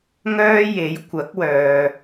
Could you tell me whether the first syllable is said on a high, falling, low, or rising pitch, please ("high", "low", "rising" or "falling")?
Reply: high